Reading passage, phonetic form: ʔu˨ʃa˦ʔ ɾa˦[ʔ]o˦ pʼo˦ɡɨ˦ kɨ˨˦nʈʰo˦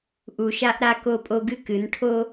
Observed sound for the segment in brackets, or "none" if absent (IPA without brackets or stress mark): k